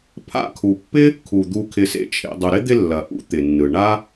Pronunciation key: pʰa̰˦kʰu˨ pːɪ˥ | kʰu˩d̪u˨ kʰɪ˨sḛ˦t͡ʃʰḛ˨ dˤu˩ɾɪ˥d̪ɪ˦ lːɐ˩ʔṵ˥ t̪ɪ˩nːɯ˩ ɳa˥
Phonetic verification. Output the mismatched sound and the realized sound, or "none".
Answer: none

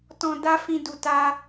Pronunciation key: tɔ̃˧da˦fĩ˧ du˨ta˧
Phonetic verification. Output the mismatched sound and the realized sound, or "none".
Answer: none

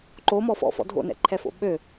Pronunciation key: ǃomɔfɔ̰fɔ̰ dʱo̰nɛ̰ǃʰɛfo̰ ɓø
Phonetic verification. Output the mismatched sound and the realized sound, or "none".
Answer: none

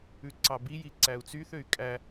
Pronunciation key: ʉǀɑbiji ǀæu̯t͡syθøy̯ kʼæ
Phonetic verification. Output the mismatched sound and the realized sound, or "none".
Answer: none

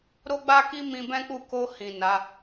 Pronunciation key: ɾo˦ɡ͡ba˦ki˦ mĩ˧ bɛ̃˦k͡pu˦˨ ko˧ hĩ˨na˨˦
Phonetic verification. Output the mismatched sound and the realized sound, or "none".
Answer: none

